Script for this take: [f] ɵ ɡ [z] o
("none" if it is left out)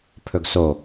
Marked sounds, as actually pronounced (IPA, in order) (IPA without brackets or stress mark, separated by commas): pʰ, s